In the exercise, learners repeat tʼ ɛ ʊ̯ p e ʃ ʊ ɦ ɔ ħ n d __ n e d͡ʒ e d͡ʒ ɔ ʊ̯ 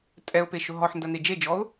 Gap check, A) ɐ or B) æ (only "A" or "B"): A